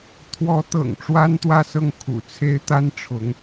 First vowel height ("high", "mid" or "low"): mid